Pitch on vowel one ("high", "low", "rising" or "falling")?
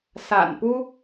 low